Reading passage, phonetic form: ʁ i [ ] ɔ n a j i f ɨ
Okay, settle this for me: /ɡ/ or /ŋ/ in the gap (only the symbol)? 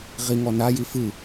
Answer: ŋ